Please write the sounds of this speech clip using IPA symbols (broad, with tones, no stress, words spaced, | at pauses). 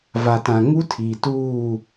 va˨tã˨ŋu˦tʰiː˨ tuː˦˨